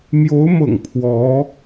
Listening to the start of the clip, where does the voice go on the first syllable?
rising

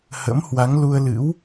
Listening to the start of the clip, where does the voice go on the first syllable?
rising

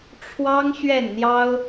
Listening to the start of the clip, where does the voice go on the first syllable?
high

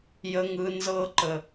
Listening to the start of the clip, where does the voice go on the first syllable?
low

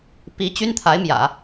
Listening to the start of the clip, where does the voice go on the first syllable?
rising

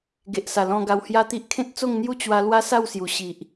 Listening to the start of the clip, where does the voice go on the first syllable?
low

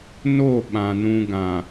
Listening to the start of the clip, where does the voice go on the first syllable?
falling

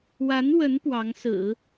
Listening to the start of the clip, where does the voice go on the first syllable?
rising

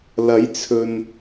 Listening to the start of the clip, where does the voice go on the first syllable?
rising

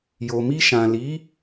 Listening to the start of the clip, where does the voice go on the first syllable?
low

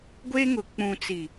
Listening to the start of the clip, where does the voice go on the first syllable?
high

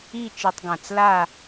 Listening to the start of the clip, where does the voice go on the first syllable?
falling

